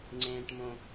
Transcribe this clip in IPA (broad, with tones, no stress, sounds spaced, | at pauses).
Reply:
ŋ͡ǀ ẽː˧ ʈ m õ˧